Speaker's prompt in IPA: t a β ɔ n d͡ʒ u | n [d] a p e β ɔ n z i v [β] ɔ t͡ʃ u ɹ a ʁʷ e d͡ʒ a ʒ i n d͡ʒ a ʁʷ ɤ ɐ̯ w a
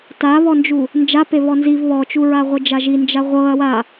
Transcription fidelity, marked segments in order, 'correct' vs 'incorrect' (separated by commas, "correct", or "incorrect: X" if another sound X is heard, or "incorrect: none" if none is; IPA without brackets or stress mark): incorrect: d͡ʒ, correct